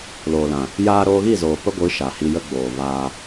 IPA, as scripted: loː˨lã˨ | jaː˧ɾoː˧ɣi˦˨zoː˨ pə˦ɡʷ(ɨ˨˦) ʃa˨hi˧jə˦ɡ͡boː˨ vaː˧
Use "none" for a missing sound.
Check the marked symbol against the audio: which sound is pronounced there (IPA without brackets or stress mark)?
ɨ˨˦